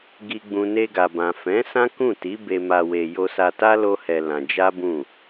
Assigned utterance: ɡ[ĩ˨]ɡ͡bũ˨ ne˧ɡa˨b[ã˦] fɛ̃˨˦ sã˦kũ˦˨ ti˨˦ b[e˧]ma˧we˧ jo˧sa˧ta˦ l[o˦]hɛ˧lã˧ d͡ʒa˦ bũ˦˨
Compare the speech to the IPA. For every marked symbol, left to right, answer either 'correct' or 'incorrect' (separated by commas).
incorrect, incorrect, correct, correct